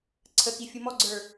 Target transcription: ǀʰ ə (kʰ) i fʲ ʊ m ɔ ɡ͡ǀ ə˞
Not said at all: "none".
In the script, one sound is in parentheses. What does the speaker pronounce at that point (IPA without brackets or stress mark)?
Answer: k